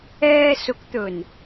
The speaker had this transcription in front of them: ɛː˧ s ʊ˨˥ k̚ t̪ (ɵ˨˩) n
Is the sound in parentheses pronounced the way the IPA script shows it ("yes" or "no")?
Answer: yes